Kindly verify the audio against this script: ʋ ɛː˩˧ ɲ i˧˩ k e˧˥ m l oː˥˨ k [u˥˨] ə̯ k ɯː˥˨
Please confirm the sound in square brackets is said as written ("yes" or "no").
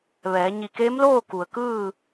no